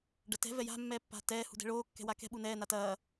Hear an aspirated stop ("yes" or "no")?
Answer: no